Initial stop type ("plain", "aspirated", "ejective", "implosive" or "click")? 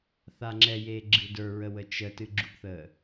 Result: click